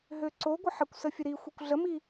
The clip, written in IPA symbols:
ɦ ø ǀ o ɡʷ ə ħ ə kʷ s ə fʲ ə ɾ i xʷ i kʷ ɮ ə m i

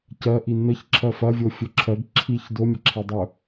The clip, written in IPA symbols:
c ɜ ʔ i n ə ç ǁʰ ɜ f ɐ vʲ o fʲ ɵ ǁʰ ɜ ɡ ǁʰ i ç d o mʲ ə ǁʰ e dˤ ɵ

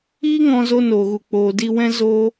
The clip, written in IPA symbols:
iː˦ ŋ ɔ̃˧ z o˧ n oː˨ ɣ u˨ k͡p oː˨ d i˧ w ɛ̃˦ z oː˦

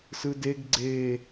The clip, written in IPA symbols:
s ɯ d e ɡ ɡ͡ǀ e

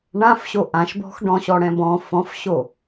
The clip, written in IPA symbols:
ɳ ã f ɕ o ʔ ã ʃ b ɔ̤ x ɖ ɔ̃ ɕ ɔ ɽ ɛ̃ b ɔ̃ f ɔ̃ f ɕ o

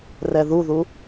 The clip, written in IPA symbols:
r ɛ ð u ð u

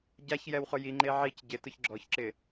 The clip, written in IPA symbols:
ɟ a ç j ɛ w χ ʊ j i ŋ͡ǃ e ʕ i c ɟ ɪ t ʊ ç ɡ͡ǁ ɔ ç ǁ ɪ

